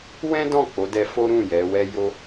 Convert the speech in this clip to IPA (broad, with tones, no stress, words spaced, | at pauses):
wɛ̃˦dɔ̃˦˨ k͡po˨˦dɛ˧fo˦ɾũ˦˨ jɛ˨˦wɛ˦jo˦